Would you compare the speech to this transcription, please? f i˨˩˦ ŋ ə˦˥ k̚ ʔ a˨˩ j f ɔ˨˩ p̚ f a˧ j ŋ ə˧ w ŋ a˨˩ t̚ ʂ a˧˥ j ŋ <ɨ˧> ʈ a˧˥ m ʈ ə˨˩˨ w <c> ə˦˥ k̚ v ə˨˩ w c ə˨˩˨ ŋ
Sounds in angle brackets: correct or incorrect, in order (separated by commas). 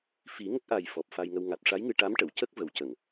correct, correct